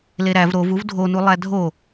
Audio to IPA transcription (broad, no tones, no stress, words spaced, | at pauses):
leɾæv ɾov uvdʱonulˠæ dʱo